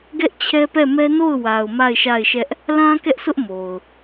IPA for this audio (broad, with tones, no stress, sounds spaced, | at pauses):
ɡ ɛ˦ ʔ t͡ɕʰ ɛ˦ p ɛ˦˨ m ɛ˦ n o˦˨ ʊ̯ w a˨ ʊ̯ m a˦˨ ɪ̯ ʃ a˦˨ ɪ̯ ʃ ɛ˦ ʔ | l ã˦ k ɛ˦ ʔ s ʊ˦ ʔ m o˨ ʊ̯